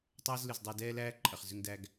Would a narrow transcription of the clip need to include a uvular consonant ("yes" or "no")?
yes